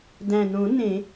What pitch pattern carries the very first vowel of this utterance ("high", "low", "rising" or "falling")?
low